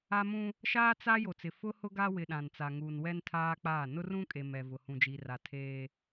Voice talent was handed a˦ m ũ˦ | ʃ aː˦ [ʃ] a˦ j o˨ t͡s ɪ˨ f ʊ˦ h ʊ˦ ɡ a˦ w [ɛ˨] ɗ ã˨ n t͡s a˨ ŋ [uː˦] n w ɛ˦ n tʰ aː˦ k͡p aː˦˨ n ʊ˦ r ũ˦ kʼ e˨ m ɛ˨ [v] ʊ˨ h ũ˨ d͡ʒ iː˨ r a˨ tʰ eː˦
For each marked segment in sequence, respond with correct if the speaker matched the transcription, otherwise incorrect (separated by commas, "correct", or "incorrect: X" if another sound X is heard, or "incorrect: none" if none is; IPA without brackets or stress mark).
incorrect: t͡s, incorrect: ɪ˨, incorrect: uː˨, correct